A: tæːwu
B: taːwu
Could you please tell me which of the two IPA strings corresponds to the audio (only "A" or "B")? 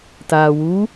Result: B